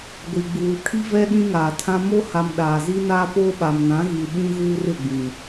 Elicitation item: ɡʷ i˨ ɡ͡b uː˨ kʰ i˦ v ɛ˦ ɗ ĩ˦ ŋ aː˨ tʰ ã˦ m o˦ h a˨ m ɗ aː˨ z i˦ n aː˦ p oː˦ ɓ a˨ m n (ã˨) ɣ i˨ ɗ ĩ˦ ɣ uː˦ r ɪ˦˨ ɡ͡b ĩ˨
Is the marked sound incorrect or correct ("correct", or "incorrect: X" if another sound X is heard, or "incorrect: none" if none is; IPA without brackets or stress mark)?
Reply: incorrect: ã˨˦